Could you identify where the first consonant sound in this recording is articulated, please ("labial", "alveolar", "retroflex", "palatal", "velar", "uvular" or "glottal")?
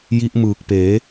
palatal